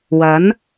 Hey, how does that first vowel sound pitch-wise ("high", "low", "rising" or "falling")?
rising